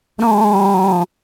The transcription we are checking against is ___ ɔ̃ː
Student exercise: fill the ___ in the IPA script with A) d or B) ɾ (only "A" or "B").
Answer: B